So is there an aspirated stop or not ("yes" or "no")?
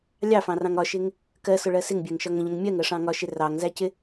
no